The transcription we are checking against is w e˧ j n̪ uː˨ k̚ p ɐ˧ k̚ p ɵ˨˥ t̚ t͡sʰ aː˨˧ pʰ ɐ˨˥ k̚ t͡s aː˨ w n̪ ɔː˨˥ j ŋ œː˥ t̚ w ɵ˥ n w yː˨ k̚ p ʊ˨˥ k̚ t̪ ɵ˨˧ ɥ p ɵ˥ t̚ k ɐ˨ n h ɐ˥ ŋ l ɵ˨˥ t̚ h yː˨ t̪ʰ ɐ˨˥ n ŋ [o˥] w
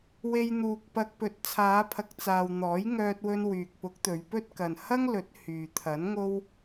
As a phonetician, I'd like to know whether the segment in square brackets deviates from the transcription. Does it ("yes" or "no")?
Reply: no